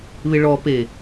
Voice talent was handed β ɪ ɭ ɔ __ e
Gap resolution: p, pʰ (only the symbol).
p